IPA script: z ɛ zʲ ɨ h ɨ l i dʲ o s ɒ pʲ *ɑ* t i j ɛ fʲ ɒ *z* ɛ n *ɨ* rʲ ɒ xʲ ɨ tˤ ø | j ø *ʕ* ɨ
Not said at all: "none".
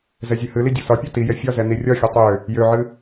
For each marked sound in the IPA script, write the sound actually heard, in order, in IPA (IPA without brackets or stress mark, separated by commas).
ɒ, z, i, ʕ